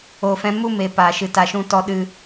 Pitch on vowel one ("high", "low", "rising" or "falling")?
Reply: low